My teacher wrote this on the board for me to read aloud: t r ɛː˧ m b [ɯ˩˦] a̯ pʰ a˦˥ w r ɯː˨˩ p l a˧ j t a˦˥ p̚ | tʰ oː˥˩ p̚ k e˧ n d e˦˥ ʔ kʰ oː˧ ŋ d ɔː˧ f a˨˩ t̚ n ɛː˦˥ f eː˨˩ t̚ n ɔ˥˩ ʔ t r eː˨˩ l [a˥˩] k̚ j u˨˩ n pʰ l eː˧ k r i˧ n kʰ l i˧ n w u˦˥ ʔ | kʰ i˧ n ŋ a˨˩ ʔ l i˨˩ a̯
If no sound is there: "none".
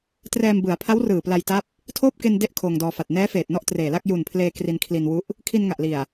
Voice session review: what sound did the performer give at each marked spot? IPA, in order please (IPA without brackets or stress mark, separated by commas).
ɯ˩˦, a˥˩